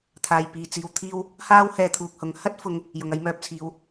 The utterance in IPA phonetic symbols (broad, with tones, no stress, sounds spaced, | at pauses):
t̪ʰ aː˨ j p iː˧ t͡s iː˧ w t̪ʰ iː˥ w | h aː˥ w h ɛː˧ t̪ʰ uː˨ k̚ h ʊ˨˥ ŋ h ɐ˥ t̚ f ʊ˧ ŋ | j ʊ˨ ŋ ɐ˧ j m œː˧ p̚ t͡sʰ iː˨˧ w